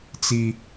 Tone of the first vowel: high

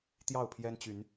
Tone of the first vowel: falling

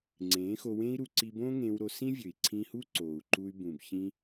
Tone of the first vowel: rising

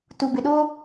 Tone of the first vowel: low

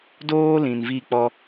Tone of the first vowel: high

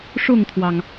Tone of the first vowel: falling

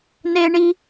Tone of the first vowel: high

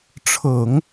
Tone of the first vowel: low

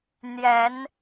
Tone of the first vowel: rising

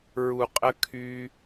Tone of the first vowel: low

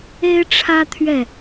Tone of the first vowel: high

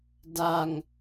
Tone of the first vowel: low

